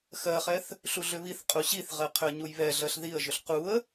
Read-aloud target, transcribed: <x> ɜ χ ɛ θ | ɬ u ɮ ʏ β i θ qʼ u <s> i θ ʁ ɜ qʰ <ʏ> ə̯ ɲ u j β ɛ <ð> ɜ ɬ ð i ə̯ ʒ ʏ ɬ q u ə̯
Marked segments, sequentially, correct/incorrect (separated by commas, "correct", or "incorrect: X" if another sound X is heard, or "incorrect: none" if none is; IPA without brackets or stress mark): correct, incorrect: ɕ, correct, incorrect: ɮ